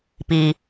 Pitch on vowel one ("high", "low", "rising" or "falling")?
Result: low